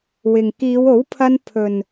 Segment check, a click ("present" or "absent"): absent